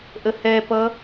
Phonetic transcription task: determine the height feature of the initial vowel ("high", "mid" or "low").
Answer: mid